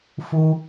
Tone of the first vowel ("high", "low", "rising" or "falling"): high